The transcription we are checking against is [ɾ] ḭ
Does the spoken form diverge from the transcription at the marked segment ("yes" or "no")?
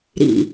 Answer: no